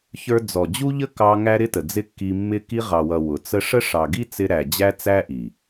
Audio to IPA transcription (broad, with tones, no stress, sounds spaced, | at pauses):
ç ə˞˧ d͡z ɔ˨ d͡ʑ u˦ ʎ ə˦ k ɑ˧ ŋ æ˦ ɾ ɪ˦ t ə˨ d͡z ɪ˦ kː i˧ mː ɪ˦ k i˧ ʁ ɑ˨ w ʌ˨ w ʊ˨ t͡s ə˦ ʂ ə˦ ʂ ɑ˨ ɡ i˦ t͡s ɪ˧ ɾ æ˨ d͡ʑ æ˦ t͡s æ˦ ʔ i˨